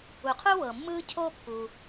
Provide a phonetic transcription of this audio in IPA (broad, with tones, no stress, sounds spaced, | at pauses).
u˩ qʰ u˥ w ɤ˩ mː ɯː˥ cʰ o˥ pː u˩